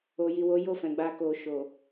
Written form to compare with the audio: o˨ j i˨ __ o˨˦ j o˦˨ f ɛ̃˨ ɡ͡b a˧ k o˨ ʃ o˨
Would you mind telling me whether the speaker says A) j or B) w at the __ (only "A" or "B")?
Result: B